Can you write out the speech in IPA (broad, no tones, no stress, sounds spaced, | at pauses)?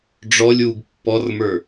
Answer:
ɖ͡ʐ ɔ lʲ w u ɡ pː ɔ r m ə˞